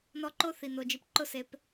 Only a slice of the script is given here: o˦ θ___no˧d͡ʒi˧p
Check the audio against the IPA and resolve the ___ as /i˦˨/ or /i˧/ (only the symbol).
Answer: i˧